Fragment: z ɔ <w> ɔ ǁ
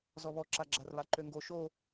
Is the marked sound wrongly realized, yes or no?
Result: yes